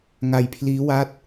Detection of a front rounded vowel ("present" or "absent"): absent